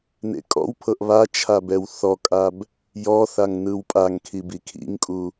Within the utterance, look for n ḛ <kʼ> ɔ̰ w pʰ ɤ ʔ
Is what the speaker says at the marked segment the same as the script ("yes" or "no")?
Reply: yes